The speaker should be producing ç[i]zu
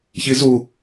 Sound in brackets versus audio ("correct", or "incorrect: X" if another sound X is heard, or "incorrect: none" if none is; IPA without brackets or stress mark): correct